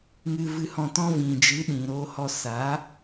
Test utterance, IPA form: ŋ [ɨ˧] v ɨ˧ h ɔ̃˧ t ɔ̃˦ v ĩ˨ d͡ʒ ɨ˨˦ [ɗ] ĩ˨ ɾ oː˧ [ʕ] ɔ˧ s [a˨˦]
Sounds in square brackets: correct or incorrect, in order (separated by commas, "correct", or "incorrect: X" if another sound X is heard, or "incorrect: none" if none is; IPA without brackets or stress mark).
correct, correct, incorrect: h, correct